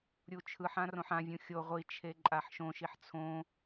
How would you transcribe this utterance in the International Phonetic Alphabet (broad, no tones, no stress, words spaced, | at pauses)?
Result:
ɾʲut͡ʃʰɯħã rõħãvʲũ xʲo ʁʷit͡ʃʰe ǃʼaħʃõʃiħ t͡sʰõ